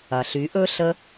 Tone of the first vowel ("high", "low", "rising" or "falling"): low